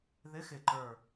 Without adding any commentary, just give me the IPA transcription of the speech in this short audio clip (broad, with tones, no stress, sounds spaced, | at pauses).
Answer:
ð ɪ˨˦ x ɪ˨˩ ǃ ə˞˨˩